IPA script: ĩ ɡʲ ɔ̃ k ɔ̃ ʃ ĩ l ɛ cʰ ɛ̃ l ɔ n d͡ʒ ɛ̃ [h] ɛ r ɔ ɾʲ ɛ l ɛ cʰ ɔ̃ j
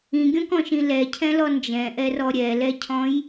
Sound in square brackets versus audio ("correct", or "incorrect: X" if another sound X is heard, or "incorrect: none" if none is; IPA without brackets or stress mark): incorrect: ʔ